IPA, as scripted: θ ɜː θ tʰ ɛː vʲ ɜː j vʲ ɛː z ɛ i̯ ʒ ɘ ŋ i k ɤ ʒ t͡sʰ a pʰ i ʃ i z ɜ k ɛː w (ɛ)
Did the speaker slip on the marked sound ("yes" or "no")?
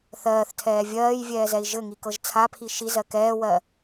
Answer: yes